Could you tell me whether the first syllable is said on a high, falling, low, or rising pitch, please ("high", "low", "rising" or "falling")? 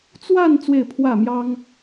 falling